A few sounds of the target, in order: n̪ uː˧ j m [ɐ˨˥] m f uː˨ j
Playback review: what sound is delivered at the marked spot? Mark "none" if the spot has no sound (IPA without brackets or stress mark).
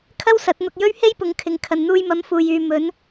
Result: ɐ˨˥